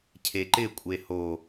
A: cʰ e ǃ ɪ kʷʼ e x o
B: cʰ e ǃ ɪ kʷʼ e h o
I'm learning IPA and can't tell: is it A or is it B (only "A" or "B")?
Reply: B